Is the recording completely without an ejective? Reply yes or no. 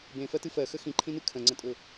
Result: no